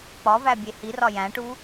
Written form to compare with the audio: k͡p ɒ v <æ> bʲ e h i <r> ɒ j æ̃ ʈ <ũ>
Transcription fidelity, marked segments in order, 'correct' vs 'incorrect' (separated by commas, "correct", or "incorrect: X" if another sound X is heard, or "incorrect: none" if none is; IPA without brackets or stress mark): correct, correct, incorrect: u